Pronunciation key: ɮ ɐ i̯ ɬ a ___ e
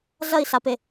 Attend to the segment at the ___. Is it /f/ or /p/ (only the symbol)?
p